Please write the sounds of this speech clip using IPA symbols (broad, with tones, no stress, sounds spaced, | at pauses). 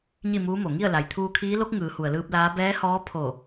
ɲ i˥˨ m uː˧˥ m o˩ ŋ i˥˨ ə̯ l a˩ j t̪ʰ uː˧ kʰ iː˧˥ l o˧˥ k̚ ŋ ɯː˩˧ h u˩ ə̯ l ɯː˧ p̚ l aː˧˥ b ɛː˧˥ h ɔː˧˥ pʰ o˧˩